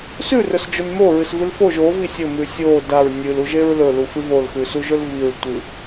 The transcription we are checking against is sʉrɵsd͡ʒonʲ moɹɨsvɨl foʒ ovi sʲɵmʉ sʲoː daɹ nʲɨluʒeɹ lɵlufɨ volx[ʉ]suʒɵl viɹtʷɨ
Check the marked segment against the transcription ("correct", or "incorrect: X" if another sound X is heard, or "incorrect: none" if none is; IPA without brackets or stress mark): correct